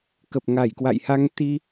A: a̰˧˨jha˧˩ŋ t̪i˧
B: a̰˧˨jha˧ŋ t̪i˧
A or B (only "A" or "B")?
B